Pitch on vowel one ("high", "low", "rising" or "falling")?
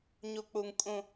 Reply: low